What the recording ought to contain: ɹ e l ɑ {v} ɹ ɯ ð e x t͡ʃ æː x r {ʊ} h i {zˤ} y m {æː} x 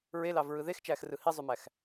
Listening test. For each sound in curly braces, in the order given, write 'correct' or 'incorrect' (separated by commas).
correct, incorrect, correct, incorrect